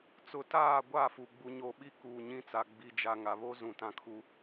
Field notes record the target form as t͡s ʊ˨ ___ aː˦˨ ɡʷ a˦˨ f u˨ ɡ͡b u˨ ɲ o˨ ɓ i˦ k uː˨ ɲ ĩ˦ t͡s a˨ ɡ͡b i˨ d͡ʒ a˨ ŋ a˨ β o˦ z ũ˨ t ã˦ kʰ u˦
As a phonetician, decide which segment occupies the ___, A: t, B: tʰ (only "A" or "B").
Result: A